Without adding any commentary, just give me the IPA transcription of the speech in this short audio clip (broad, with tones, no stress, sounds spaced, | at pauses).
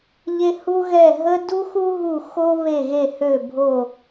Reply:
ʎ e˦ h u˦ ɣ ɛ˧˩ ɦ ə˦ d u˦ x u˦ ɦ u˧˩ x o˦ β e˧˩ ɣ e˧˩ h ø˧˩ bʱ o˧˩